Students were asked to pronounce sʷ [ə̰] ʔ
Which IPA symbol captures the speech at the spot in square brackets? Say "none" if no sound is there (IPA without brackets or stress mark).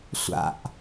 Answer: a̰